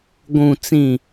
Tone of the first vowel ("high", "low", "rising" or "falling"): low